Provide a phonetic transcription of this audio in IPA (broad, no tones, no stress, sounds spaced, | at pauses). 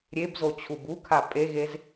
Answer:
ɾʲ e b z o t͡ɕʰ u b u kʰ a pʼ e ɣ e z